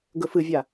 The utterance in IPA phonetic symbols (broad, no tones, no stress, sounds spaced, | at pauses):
ɡ ɵ f ɨ vʲ a